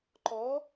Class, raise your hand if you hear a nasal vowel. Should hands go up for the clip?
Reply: no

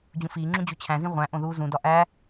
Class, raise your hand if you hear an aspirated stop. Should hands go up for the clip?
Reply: yes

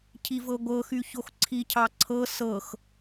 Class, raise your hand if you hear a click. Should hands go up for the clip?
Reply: yes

